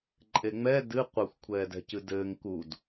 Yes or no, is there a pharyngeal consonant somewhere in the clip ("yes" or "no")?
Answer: no